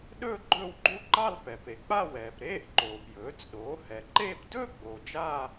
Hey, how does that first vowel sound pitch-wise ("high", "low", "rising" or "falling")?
falling